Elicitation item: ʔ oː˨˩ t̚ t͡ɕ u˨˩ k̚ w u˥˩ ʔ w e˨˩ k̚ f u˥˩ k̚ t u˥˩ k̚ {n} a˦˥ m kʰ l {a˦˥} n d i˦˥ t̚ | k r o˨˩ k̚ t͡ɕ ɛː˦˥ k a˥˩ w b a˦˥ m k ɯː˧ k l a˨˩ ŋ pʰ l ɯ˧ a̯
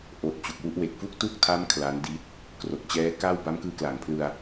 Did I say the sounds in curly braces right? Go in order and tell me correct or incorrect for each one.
incorrect, correct

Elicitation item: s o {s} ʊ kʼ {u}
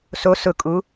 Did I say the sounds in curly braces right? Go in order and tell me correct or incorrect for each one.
correct, correct

